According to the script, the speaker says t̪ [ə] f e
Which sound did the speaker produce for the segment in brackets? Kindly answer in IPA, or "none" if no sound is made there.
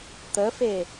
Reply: ə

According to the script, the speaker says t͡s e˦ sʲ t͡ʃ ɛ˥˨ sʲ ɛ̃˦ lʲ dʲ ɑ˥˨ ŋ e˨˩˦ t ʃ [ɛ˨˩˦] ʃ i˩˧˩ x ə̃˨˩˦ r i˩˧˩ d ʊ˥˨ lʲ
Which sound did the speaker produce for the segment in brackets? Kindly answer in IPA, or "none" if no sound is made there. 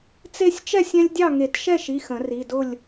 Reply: ɛ˥˨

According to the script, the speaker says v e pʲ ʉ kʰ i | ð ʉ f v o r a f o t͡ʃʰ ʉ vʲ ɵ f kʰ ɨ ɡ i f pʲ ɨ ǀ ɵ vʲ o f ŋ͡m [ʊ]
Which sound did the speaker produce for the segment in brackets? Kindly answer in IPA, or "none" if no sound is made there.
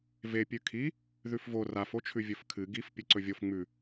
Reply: ʉ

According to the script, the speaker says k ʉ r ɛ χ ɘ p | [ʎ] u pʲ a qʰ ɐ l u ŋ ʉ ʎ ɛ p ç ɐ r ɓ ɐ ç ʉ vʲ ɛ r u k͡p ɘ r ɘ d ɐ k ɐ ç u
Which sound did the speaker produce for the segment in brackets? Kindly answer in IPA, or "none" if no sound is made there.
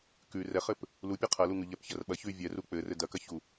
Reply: l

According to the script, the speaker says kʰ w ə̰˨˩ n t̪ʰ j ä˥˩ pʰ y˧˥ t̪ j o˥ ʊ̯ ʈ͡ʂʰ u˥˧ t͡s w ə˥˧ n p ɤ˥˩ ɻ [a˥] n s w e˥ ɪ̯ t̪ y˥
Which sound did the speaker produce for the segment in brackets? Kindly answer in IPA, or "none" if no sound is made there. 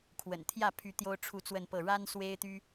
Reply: a˥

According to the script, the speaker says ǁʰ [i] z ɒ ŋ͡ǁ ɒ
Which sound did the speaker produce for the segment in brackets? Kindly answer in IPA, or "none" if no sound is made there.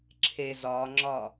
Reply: e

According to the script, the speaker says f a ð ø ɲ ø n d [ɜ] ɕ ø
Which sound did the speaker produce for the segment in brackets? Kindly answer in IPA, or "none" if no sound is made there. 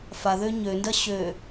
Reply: ɜ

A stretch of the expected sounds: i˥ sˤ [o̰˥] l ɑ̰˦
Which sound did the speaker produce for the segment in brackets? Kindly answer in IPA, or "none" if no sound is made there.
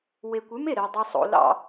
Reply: o̰˥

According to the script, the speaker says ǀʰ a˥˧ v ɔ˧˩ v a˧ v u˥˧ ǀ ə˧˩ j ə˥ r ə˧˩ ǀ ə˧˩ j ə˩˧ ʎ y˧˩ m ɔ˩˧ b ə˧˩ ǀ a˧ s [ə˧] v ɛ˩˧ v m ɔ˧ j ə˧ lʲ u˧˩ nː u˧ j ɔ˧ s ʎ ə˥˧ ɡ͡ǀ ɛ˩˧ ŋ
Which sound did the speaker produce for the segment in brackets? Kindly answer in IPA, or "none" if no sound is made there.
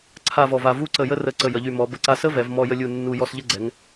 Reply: ə˥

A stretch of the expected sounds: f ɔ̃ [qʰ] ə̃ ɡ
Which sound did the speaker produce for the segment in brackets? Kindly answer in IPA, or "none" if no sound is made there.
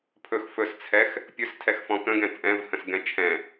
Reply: k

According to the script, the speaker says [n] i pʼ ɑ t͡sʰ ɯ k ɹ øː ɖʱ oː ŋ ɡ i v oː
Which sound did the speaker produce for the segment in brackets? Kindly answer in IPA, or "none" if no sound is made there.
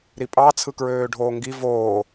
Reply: ɾ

